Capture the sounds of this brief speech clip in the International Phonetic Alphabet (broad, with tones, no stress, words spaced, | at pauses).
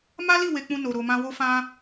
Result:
ma˦li˦˨ we˧k͡pũ˧ no˨ɾo˨mã˧ wo˧fã˧